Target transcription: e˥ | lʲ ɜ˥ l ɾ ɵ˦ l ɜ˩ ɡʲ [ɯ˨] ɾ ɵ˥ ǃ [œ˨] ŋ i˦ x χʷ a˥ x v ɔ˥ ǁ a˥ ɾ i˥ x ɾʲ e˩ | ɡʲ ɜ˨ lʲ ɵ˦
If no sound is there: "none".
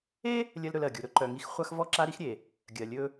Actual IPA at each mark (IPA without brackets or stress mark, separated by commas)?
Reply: u˨, œ˨